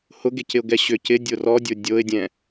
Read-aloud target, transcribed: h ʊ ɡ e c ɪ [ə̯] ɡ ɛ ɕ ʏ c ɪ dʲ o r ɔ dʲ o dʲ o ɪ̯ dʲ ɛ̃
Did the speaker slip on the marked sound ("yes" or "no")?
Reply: yes